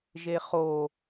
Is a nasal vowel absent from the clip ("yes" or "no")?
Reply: yes